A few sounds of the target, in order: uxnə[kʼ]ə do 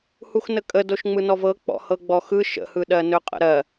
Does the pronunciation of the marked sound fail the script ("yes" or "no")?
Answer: no